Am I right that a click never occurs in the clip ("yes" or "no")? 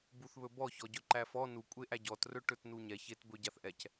no